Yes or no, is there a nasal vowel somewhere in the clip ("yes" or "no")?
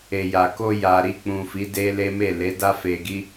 yes